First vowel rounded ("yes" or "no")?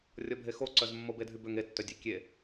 yes